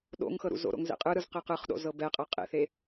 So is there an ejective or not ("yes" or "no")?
yes